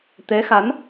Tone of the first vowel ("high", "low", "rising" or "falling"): rising